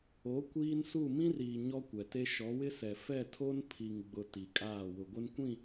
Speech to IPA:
o˨˦ kʷ iː˦ n s u˦˨ m ĩ˦ r iː˨ ɲ ɔ˦ kʷ ɛ˨ t e˦ ʃ ɔ˨˦ w ɪ˦ s ɛ˨ f ɛ˦˨ tʰ o˦ n pʰ i˨ ŋ ɡ͡b ʊ˨ t i˨ kʼ aː˦˨ w ʊ˨ ɡʷ ɪ˦ n kʷ ĩ˦˨

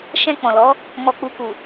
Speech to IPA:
ʃ ɛ̃˧ k͡p ɔ̃˨ l ɔ˨˦ | m ɔ˨ k͡p u˨ k u˨

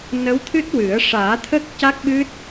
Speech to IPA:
n ə˧˥ w t̪ʰ ɨ˦˥ t̚ w ɨ˨˩˦ ə̯ ʂ aː˨˩˦ t̪ʰ ə˦˥ k̚ c a˦˥ k̚ ɓ ɨ˦˥ t̚

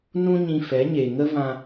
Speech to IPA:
n ũ˦ ɲ ĩ˧ f ɛ˨˦ ɲ e˨ ŋ ə˦ v ã˧

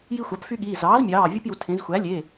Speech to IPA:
j i˦ xʷ ɑ˩˥ p f y˦ ɠ iː˩˧˩ z ɑː˩˥ z mʲ ɑː˩˧˩ vʲ u˦ p j u˩˧ tʰ ẽ˩˧ z xʷ æ˩˥ lʲ e˩˧˩

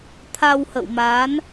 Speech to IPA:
t̪ʰ a˧ w h ə̰˧˨ w m aː˨˦ n

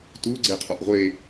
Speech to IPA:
t u ɡ͡ǀ e qʰ ɔ ʔ ʁʷ e

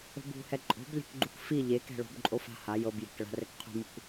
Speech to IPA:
o̤ b ṳ h ɛ ǃʼ o̤ b lʲ ɛ̤ k ɡ͡ǃ u k f i ʎ e k ɛ̤ ɭ o̤ b ǃʼ o f a̤ h a j ɤ b j e̤ k ɭ a̤ r ɛ k qʰ ṳ m u k

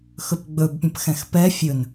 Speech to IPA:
x ɵ p ɡ͡b ɵ b pʲ ə̃ p x ɛ̃ x p ɛ fʲ ɵ n

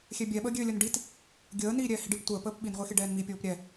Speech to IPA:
xʲ ɛ bʲ ɛ ɓ əː ɡʲ ø lʲ ə n ɖ i t | ɡʲ əː n iː ɾʲ ɛː h i ɖ i p tʷ əː p əː p ɓ i n ʁʷ e x e ɖ ɛː n m i pʲ oː p ɾʲ ɛ

